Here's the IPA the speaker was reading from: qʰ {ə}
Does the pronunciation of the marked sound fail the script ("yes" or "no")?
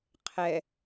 yes